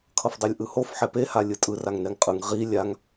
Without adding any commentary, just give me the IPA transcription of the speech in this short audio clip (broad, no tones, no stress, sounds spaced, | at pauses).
kʰ ʌ f dˤ u lʲ ʔ ɯ h o f ħ ɛ p e h a lʲ ɯ tʼ ɯ r a ŋ n ɛ ŋ qʼ ɯ ŋ ʁ i lʲ a ŋ